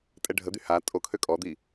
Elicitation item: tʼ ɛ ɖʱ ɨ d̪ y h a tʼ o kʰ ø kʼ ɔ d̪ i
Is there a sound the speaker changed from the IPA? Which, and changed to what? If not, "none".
ɨ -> ə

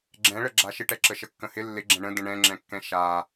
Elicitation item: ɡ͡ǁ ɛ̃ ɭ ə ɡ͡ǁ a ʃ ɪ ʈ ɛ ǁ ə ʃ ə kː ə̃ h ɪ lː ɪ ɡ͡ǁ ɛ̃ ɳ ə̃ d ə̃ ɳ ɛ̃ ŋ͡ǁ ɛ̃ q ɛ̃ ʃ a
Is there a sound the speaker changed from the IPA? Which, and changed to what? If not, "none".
q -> kː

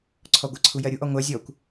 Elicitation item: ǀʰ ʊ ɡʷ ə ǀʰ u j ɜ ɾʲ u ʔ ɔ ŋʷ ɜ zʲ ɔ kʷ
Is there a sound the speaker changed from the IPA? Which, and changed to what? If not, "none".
ʊ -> ɔ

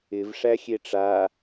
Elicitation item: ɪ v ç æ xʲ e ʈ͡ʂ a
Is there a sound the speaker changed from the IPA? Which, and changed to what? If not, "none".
ç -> ʂ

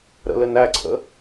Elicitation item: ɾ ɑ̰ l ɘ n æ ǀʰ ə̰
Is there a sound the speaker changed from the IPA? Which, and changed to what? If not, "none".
ɑ̰ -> ə̰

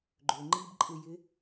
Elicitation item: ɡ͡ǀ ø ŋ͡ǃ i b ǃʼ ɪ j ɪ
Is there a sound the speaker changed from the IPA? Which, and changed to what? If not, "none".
ɡ͡ǀ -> ɡ͡ǃ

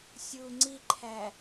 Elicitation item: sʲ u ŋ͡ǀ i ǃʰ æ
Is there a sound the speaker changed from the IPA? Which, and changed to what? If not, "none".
none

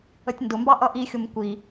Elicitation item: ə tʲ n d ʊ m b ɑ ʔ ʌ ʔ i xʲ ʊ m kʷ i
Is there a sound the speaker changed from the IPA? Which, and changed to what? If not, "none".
none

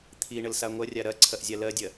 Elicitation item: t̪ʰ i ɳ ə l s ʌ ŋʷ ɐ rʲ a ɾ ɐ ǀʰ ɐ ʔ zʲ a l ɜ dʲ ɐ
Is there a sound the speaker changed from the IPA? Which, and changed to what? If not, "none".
ʌ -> a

